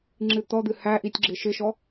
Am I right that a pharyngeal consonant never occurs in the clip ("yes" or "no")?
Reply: yes